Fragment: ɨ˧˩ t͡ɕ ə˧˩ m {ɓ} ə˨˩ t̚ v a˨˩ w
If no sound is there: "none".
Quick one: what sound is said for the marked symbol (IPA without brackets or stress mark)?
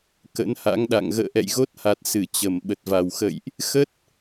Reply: ɓ